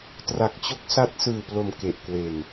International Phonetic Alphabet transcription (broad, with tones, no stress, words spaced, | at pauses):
tra˨˩k̚t͡ɕo˦˥k̚sa˦˥t̚ sɯː˨˩plo˨˩m ke˨˩ʔkwe˨˩n